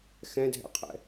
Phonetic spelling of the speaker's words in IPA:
x ɛ̃ dʱ ɛ̰ qʰ ɛ̰

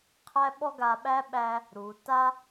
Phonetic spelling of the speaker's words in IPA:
qʰ æ˥ ɓ ɔ˥ ɡ a˧ ɓ æ˥ ɓ æ˧ | ɾ u˩˧ t a˥

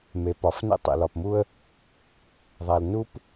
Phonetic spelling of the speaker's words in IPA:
m e˩ p ɒ˩ f n ḛ˥ tˤ ḛ˩ l ɒ˩ p m u˥ ə̯ | ðˤ æ˩ l n u˥ p

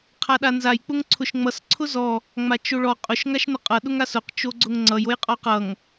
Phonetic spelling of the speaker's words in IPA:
qʰ a ɗ a n z a j k͡p ʊ ŋ ǀʰ ʊ ʃ ŋ͡m ʌ s ǀʰ ʊ z ɔ | ŋ͡m a t͡ʃ o ɭ ɔ qʼ ʊ ʃ ŋ a ʃ n ʊ qʼ ʌ ɗ ʊ ŋ a s ʊ q t͡ʃ o ɡ͡ǀ ʊ ŋ ŋ͡ǀ ʌ j o j qʼ ɔ q ʌ ŋ

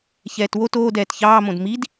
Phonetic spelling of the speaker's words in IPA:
ç ɛː t w o t oː d ɛː t ç ɑː m õ d m i d

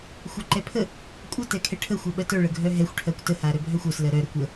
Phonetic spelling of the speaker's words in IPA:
xʷ a ǃ ɛ pʰ ə | kʷʼ ə t ɛ kʰ ɛ ʈʰ ə xʷ ɜ ɓ ɜ t œ ɭ ə ɡʱ œ ɦ ɛ xʷ ʈʰ ɜ kʷ t ə h a ɾ œ bʱ œ xʷ œ s l ɜ ɾ œ ɾ ə kʷ ə

